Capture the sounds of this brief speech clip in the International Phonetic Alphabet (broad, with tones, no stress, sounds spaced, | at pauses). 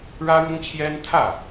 ɻ ä˥ ɻ ʊ˥ ŋ t͡ɕʰ j ɛ˥ n t̪ʰ ä˥˩